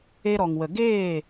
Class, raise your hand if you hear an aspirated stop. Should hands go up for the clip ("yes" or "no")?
no